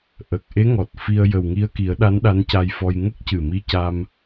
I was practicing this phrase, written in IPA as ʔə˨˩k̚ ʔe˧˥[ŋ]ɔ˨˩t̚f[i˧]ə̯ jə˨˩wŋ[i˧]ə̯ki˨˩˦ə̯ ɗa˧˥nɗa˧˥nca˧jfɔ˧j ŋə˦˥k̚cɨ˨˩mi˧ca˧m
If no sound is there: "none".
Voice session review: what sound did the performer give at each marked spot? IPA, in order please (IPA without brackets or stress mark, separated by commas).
ŋ, i˧, i˧